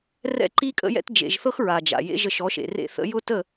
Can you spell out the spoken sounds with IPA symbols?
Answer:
r ɛ̰˦ ǃ i˦ kʼ ə̰˧ j ɛ̰˧ t d͡ʒ ḛ˨ ʒ θ ɤ˦ x ɹ a˨ d͡ʒ a̰˨ j ḛ˦ ʒ ə˧ ʃ ɔ˨˦ ʃ ḛ˨ r ḛ˦˨ θ ə̰˧ j ʊ˦ t ə˦˨

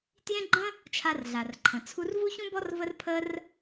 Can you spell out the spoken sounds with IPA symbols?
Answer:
t j ẽ˦ ɡ͡ǃ ə̃˦ | t͡ʃʰ a˧ r ɮ a˨ r ǃʰ ə̃˨ t͡sʰ u˧ r v u˦ ç ũ˦ b ɔ˦ r v ə˦ r pʰ ə˦ r

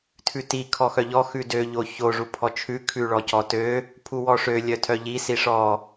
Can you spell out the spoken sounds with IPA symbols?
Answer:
tʰ ʉ t i kʰ ɔ x œ ʎ ɔ x ʉ d ø ʎ o ç o ʐ u pʰ ɔ t͡ʃʰ ʉ kʰ ʉ ɭ ɔ c ɔ t ø | pʰ u w ɔ ʂ ø lʲ œ tʰ œ ʎ i s i ʂ ɔ

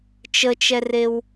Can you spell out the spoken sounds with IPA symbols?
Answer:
t͡ʃ ə t͡ʃ ɛ r e w

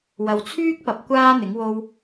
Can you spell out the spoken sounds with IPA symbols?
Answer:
w ɐ˨ w t͡sʰ yː˥ k̚ p ɐ˨˥ p̚ kʷ aː˥ n̪ ɪ˨˥ ŋ w o˥ w

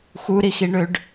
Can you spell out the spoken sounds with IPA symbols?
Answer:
x u ɾ i x i ɳ ø ɖ

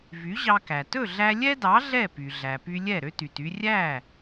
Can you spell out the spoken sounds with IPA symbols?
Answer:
v y˩˥ ʑ ɑ˧ k æ˩ t ɵ˥˩ ɮ æ˧ lʲ ɛ˥ d ɑ˩˥ ɮ ɛ˥˩ p y˩ ɮ æ˩ p y˧ lʲ ɛ˥˩ ɾ ø˥ t y˩ t y˧ rʲ æ˥˩

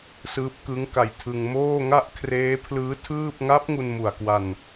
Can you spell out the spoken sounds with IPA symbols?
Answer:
s ɯː˦˥ p̚ k ɯ˦˥ ŋ k a˧ j tʰ ɯ˧ ŋ m oː˥˩ ŋ a˥˩ ʔ kʰ r eː˦˥ pʰ l ɯː˦˥ tʰ ɯː˥˩ p̚ ŋ a˦˥ p̚ ŋ u˧ n m u˨˩ a̯ k w a˧ n

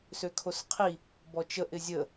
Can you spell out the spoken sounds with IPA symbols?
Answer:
s ø kʰ o s qʰ i | b ɔ t͡ʃ ə ʔ ɪ zʲ ə

